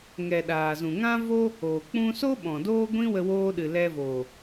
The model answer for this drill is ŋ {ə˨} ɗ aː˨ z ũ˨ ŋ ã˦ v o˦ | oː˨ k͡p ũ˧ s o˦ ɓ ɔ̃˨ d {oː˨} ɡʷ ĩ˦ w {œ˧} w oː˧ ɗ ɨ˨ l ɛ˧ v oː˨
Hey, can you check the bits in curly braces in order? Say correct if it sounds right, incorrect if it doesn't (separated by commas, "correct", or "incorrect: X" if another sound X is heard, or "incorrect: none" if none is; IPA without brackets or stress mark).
incorrect: ɛ˨, incorrect: oː˦, incorrect: ə˧